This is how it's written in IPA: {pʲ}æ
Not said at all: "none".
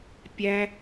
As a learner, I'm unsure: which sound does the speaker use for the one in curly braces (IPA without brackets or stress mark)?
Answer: pʲ